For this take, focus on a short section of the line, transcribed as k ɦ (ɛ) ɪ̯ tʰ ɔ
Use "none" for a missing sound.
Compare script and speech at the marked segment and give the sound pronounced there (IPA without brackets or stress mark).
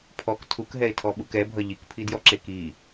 ɛ